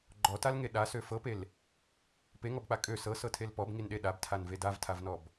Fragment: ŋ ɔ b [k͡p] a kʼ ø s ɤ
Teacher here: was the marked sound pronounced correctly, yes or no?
yes